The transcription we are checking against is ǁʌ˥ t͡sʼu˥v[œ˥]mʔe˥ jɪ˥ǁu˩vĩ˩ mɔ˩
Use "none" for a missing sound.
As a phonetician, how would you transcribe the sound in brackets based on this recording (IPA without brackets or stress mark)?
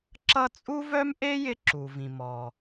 œ˥